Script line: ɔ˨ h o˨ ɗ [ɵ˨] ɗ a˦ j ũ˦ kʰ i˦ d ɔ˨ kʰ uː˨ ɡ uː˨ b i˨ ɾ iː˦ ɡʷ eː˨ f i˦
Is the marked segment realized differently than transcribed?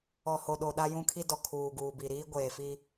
yes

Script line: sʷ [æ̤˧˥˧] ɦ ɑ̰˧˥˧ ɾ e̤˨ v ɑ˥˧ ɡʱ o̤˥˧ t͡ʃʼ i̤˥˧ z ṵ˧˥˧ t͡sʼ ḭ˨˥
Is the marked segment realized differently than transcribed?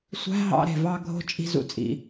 no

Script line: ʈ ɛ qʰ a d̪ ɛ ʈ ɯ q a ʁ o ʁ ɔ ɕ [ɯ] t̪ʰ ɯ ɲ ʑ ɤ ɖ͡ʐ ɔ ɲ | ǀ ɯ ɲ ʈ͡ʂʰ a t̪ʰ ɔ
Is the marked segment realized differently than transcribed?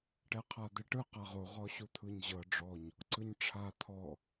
yes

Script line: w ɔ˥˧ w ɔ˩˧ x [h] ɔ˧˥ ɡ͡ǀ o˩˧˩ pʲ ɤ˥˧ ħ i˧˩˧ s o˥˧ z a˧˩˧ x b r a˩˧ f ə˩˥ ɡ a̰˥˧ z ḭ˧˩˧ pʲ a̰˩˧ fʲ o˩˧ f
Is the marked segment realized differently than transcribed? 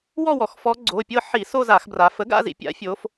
yes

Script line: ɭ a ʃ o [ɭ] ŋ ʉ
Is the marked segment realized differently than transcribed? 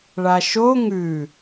yes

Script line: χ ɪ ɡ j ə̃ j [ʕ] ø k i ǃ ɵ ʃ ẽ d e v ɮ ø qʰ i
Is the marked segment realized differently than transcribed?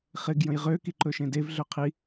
yes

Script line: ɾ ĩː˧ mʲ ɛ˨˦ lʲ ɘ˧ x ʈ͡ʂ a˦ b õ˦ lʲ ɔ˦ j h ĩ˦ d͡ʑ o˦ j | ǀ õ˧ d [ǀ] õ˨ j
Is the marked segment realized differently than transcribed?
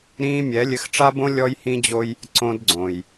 yes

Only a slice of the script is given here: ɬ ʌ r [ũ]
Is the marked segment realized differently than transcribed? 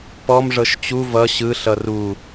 yes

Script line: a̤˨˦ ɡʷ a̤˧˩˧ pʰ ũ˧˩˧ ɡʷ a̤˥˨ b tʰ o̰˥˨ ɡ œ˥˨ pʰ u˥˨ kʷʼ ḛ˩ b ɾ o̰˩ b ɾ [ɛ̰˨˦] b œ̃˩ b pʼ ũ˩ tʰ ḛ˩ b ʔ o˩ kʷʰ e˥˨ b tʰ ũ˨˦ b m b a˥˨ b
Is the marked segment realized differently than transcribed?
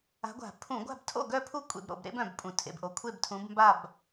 yes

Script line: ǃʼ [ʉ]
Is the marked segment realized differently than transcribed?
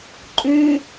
no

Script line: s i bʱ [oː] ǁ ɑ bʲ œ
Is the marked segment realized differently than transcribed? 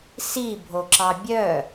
yes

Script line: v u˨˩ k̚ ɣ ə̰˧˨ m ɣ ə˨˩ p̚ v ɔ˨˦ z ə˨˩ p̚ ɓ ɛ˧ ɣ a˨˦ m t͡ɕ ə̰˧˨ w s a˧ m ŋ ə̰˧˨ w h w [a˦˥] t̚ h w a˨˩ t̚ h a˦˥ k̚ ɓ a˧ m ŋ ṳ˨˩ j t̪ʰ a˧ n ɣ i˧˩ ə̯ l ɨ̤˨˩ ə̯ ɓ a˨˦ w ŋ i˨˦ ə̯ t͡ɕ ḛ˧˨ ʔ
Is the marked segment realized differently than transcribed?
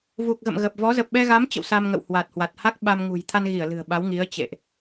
yes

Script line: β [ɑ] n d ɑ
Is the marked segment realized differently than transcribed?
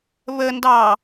yes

